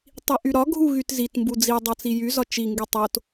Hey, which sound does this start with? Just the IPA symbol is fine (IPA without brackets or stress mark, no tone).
tˤ